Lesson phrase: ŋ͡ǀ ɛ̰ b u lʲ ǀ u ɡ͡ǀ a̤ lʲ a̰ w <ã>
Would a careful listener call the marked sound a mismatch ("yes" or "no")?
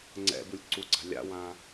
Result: no